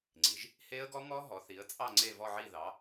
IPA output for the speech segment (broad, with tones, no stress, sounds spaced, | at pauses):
ŋ͡ǀ i˩˧ ʒ | h e˦˥ ə̯ ɡ ɔ˦˥ ŋ ɔ˦˥ ɦ ɔ˩˧ θ i˩˧ ə̯ t͡sʼ ɑ˦˨ ŋ͡ǀ e˦˨ v ɔ˦˨ ʕ i˦˨ ð ɑ˩˧